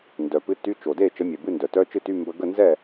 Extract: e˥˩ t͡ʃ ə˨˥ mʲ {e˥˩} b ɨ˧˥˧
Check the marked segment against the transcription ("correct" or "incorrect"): incorrect